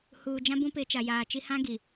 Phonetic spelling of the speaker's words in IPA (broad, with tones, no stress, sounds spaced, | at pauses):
h uː˨ d͡ʒ ã˦ b ũ˦ p ɪ˨˦ t͡ʃ a˨ j aː˨ t͡ʃ i˦ h ã˦ ɡ i˨